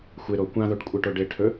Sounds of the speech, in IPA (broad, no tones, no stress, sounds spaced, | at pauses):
xʷ e ɾ o kʷ ã ð o ʈ kʷʼ e ʈ o ɖ e ʈʰ ɵ